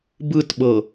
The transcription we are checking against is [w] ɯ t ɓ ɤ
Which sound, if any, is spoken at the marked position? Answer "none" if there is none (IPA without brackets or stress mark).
b